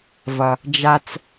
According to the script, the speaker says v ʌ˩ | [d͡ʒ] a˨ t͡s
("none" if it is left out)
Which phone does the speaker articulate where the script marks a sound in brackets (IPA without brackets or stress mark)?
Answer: d͡ʒ